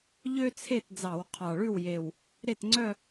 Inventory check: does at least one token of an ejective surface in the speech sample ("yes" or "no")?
no